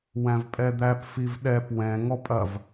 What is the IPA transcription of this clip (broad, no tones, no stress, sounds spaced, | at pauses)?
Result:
w æ̃ v pʼ ɛ d̪ æ p f i v ɗ ɛ p w ɛ̃ ŋ ɔ pʼ ɐ v